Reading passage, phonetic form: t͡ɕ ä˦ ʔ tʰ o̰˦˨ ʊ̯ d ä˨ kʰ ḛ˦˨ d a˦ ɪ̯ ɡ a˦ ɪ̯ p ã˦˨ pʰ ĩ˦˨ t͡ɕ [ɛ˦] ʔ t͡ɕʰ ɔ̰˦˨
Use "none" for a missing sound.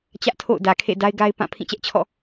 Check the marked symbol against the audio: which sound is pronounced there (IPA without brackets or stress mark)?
ɛ˦